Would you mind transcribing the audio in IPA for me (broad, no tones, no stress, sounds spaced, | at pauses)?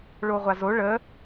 ɭ o ʁʷ a z o ɭ ə